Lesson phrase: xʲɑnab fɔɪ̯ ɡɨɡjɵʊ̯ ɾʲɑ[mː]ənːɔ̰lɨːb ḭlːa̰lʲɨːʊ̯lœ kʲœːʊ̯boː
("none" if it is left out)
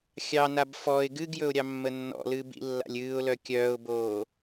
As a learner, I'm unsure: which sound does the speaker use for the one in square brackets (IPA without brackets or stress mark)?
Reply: mː